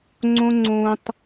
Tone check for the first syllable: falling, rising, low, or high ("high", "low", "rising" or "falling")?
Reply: high